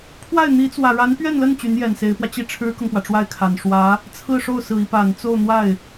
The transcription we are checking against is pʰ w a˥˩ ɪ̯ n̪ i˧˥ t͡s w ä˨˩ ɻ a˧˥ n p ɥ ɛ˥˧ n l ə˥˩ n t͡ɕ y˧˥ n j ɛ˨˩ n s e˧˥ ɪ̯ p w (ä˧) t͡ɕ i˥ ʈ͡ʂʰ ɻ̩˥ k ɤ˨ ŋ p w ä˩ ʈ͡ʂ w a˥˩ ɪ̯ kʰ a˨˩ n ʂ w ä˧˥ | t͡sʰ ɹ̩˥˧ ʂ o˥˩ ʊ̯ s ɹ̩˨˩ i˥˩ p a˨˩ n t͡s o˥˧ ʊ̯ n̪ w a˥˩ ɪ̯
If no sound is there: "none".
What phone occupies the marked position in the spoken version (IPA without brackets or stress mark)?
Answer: ä˧